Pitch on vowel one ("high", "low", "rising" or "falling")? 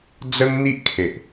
high